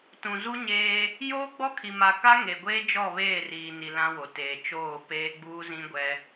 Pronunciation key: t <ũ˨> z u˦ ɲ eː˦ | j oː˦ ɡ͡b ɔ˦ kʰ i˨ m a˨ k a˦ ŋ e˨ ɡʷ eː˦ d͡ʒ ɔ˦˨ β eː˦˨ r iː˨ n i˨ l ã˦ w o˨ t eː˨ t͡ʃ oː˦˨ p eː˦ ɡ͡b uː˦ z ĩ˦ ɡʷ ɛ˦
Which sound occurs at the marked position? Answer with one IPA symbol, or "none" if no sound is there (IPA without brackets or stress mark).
ũ˨